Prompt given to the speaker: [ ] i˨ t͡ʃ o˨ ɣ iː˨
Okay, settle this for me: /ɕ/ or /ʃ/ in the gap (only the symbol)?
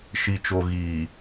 ʃ